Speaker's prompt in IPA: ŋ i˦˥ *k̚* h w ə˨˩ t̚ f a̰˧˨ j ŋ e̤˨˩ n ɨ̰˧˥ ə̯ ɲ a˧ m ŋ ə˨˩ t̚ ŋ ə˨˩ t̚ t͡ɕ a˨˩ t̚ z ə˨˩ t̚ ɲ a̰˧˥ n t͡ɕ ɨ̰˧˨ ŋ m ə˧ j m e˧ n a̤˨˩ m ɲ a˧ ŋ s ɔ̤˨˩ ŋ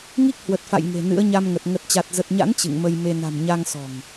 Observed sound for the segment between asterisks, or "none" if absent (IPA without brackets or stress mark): k̚